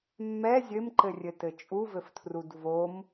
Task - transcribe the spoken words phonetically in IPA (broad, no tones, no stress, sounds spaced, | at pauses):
mː ɛ zʲ ɘ m ǃ ɘ rʲ ɘ t ɘ t͡ʃʼ u v ɘ f tʰ r u d v o m